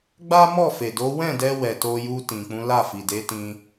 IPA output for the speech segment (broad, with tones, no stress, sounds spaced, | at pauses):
ɡ͡b a˦ m ɔ˦˨ f e˨ d o˨˦ w ɛ̃˦˨ d ɛ˧ w ɛ˨ t o˧ j u˧ t ĩ˨ k͡p ũ˨˦ l a˦˨ f i˨ d e˨˦ t ĩ˧